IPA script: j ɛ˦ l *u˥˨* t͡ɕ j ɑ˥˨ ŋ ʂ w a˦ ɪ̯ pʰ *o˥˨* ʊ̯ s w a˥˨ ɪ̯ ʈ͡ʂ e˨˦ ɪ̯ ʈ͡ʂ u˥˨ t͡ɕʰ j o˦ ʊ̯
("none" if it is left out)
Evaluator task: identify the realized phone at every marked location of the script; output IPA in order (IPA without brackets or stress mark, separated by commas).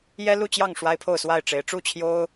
u˥˨, o˥˨